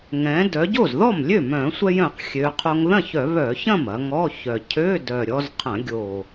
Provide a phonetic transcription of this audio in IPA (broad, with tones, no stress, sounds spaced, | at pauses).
ŋ ɛ̃˩˧ d œ˩˧ ɟ o˥˩ z ð ɔ˥˩ m lʲ ø˥˩ m œ̃˧˩˧ sʷ ɛ˧ j œ̃˧˩˧ q xʲ ø˩˧ qʰ o˧ ŋ ð ɐ̃˥˩ ç œ˧˩˧ β œ˧˩˧ ç ɐ̃˥˩ m ɐ˩˧ ŋ ɔ˧˥˧ ç œ˨˩ cʰ ø˧˥˧ d œ˨˩ ɾʲ ɔ˧ z qʰ ɐ̃˧˩˧ ɡʲ o˨˩